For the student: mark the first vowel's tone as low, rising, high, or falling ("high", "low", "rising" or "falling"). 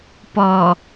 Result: low